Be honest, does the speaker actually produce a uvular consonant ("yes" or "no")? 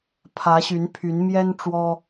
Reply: no